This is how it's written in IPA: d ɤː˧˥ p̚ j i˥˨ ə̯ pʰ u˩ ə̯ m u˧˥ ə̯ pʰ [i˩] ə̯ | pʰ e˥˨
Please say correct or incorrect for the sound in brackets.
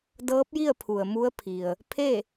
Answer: correct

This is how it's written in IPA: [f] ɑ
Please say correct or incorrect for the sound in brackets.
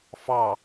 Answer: correct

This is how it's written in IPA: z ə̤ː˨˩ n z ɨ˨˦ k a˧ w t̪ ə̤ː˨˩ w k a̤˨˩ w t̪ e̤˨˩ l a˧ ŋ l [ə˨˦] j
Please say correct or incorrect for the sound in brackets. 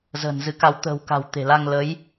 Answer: correct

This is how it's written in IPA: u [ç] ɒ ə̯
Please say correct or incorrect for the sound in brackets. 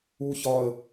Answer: correct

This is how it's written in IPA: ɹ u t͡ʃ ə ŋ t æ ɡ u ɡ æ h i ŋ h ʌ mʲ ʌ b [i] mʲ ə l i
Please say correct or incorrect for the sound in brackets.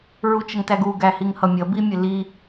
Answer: correct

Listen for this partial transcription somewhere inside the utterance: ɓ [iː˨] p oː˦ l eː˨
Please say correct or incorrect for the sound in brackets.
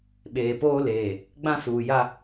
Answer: incorrect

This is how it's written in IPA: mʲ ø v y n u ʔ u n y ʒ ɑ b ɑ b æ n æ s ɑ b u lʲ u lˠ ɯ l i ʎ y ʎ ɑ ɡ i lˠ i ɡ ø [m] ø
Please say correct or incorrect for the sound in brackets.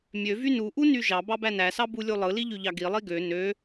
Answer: incorrect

